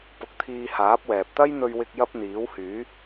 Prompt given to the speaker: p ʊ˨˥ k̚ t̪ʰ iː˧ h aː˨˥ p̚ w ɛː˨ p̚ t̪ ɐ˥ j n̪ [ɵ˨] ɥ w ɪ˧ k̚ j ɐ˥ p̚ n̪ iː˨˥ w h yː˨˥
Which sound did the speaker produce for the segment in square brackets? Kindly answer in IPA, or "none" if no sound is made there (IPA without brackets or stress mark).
ɵ˧